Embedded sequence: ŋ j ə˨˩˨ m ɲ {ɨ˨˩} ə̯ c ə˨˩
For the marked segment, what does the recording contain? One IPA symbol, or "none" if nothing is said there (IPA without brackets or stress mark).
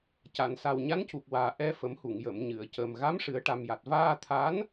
ɨ˨˩˨